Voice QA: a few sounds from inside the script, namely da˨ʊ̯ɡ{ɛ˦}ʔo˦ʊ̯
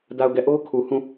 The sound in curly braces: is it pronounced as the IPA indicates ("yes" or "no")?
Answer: no